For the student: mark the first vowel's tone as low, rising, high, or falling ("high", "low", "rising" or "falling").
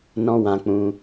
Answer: high